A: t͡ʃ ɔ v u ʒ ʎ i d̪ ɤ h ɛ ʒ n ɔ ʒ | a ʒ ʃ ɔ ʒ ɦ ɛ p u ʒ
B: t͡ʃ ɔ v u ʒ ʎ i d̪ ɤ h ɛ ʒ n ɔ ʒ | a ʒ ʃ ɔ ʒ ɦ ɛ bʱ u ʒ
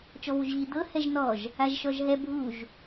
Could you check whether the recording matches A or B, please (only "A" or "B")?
B